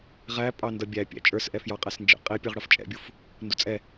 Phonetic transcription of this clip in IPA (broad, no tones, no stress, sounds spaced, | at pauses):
ʁ æ pʼ ɑ n d ʌ bʲ æ pʲ æ̰ t͡ʃʼ ə˞ s ʔ ɛ f j ɑ qʼ æ s n d͡ʒ ɛ̰ qʼ i pʲ ə˞ ʁ ɽ ʌ f t͡ʃʼ ɛ̰ bʲ u f | n d u t͡sʼ ɛ